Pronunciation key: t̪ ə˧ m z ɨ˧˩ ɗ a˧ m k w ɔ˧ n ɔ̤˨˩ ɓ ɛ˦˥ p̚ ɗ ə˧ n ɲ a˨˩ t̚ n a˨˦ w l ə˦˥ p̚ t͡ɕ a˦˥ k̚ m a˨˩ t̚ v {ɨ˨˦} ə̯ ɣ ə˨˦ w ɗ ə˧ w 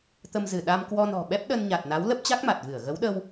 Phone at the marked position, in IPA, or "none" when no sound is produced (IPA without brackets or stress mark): ɨ˧˩